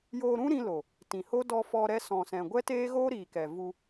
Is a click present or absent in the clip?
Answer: absent